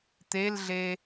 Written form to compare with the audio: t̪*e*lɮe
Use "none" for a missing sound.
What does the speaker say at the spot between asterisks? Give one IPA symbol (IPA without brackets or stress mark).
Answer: e